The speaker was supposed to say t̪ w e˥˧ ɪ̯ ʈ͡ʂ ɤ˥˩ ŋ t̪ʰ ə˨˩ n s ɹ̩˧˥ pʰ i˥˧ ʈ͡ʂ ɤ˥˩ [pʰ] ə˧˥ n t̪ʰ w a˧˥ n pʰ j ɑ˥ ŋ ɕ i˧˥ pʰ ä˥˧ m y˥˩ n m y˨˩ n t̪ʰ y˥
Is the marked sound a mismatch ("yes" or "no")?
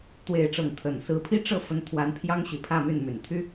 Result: yes